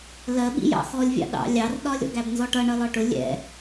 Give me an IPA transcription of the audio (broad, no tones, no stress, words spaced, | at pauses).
lɜɓḭjɑ̰ xɔlʲvʲɑ̰ ɗɑ̰ lʲɑrɗɒ lʲɔ̰ɡæbnzɔʈʌ ɳʌlɒʈʊ lʲɛ̰